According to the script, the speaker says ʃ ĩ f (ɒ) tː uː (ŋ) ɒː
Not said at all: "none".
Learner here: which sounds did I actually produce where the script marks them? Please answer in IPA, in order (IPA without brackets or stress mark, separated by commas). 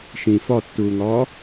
ɒ, ŋ